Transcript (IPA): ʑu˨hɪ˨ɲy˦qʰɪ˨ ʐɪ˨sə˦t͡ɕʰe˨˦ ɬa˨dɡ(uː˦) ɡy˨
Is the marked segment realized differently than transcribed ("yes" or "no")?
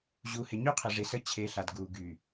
yes